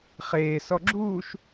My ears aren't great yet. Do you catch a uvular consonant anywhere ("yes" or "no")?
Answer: yes